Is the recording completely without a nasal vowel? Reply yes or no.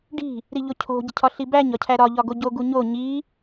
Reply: yes